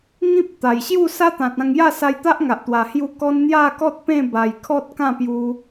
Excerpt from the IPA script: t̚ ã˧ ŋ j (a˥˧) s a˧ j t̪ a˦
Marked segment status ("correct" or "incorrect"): correct